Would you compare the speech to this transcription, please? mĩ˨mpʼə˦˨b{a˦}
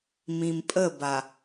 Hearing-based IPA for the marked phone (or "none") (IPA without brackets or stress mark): a˨